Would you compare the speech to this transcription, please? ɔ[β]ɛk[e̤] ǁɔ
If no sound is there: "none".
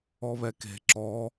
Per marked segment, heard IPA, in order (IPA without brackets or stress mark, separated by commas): β, e̤